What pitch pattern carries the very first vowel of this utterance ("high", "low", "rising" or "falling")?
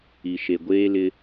low